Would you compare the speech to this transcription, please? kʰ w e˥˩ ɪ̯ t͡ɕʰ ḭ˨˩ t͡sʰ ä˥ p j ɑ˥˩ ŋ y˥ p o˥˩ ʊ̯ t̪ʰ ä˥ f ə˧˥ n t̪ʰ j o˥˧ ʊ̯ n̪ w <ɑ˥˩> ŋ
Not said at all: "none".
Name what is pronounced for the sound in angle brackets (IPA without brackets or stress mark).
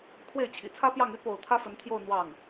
ɑ˥˩